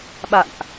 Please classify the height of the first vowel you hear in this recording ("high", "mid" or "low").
low